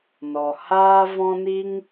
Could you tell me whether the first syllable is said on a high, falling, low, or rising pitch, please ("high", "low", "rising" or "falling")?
low